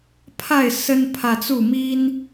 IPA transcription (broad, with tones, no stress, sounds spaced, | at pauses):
pʰ a˥˨ ɪ̯ s ə˦ n pʰ ä˨ t͡s u˥˨ m i˦ n